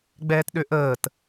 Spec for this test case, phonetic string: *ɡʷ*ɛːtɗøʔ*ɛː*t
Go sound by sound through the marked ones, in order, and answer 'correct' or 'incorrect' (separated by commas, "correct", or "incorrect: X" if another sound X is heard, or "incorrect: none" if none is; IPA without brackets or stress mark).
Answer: incorrect: ɡ͡b, incorrect: əː